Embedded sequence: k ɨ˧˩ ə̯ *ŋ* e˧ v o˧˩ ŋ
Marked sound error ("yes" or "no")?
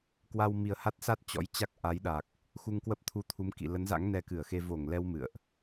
yes